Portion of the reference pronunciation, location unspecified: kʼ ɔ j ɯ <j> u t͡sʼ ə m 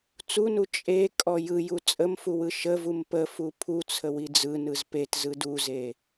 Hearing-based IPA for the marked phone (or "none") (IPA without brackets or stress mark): j